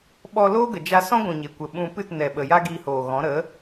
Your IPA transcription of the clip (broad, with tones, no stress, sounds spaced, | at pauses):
ɓ ɔ˧ l oː˦ ɡ ə˨ d͡ʒ a˧ s ɔ̃˦ ɡʷ ũ˨ ɲ e˨ kʷ ə˨ ɓ ũ˧ p ɨ˦˨ t n ɛ˨ ɓ ə˨ j a˦ ɡ iː˧ h oː˨ ɣ ɔ̃˨˦ ɾ ə˨˦